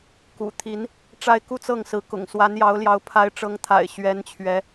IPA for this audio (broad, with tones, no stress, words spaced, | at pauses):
kṵ˨˩ t̪ʰi˧˥n | ʈ͡ʂa˥ɪ̯ku˥˧t͡sɤ˥˩ŋsɹ̩˧˥ kʊ̰˨˩ŋswa˧˥njɑ˧˥ʊ̯ljɑ˧˥ʊ̯ pʰa˧˥ɪ̯ʈ͡ʂɤ˧˥ŋt̪ʰa̰˨˩ɪ̯ ɕɥɛ˧˥nt͡ɕʰɥɛ˧˥